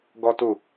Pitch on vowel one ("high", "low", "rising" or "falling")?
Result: high